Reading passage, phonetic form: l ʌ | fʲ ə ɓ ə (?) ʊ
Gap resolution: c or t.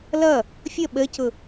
c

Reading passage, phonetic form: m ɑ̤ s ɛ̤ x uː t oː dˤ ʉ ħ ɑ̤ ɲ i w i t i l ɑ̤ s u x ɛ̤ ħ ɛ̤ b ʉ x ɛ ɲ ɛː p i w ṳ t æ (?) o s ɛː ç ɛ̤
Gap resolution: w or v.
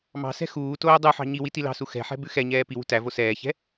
v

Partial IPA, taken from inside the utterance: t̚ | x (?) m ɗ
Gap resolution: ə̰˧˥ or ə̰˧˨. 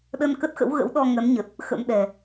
ə̰˧˥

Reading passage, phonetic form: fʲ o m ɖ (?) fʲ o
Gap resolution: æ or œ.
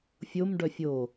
œ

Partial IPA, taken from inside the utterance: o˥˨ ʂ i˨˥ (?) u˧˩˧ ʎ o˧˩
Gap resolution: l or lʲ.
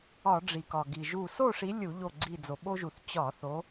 lʲ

